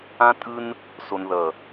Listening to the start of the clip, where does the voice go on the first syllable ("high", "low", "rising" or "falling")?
high